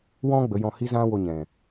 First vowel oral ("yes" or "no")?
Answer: no